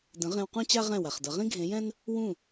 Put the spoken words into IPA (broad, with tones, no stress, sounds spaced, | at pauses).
d ə̃˨˦ ʁ ẽ˧ w q ũ˦ t͡ɕ a˦ ʁ ɛ̃˦˨ w a˨ χ d ʌ˨˦ ʁ ĩ˦ ɡʱ ẽ˨˦ j ɛ̃˦ n | w ũ˦˨